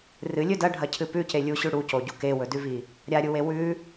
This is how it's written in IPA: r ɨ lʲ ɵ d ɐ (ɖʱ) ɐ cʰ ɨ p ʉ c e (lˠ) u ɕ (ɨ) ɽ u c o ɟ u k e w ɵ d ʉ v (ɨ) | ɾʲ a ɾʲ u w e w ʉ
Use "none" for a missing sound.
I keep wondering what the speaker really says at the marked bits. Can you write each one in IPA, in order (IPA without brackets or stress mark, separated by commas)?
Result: ɖʱ, lʲ, ʉ, i